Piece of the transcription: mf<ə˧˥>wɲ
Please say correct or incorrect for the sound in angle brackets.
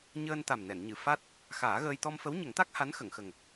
correct